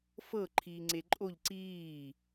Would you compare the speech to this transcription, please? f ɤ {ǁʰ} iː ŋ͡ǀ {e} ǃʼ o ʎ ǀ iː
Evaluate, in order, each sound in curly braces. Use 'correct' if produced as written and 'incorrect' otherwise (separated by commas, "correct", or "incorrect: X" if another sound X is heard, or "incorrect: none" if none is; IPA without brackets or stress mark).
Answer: incorrect: ǃʰ, correct